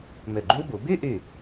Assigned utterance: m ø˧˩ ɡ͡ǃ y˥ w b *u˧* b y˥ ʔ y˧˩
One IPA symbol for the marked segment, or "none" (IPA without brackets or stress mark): u˩˧